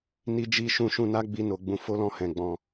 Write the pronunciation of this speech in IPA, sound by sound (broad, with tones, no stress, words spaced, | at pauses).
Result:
ni˧d͡ʒi˧ ʃũ˧ʃũ˧na˦ɡ͡bi˧ no˨ɡ͡bũ˧fo˦ lɔ̃˧ hɛ̃˨ɡ͡bɔ̃˧